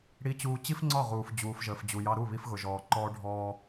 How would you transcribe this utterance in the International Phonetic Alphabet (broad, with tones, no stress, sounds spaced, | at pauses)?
ɽ i˨ t͡ɕ uː˨ t͡ɕ i˦ f ŋ͡ǀ ɒ˦˨ ʁ uː˨ f d͡ʑ uː˨ f ʒ əː˨ f d͡ʑ u˨ j ɑ˦ ɾ u˦˨ β i˦ f ɣ ʊ˨ ʒ ɔː˨ ǃ ɔː˦ ɖʱ ɔː˦